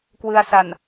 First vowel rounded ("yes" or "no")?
no